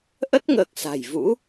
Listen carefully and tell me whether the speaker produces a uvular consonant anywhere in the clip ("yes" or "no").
no